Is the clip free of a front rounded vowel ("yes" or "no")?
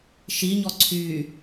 no